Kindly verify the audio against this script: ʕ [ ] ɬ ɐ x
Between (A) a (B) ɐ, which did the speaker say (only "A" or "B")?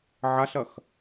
A